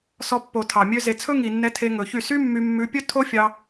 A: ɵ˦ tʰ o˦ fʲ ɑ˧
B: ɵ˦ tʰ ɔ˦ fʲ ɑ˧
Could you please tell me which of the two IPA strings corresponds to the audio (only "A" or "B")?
A